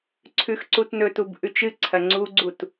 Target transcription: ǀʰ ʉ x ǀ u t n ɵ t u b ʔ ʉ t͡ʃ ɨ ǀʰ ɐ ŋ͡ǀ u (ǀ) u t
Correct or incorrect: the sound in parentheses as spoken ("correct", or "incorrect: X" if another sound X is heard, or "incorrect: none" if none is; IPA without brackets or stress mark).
incorrect: ɡ͡ǀ